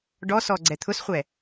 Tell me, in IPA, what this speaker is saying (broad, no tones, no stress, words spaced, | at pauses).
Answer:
ɖɔsɔ ɡ͡ǀɛt̪ʰʊsχʷɛ